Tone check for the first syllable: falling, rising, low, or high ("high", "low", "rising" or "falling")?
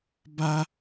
high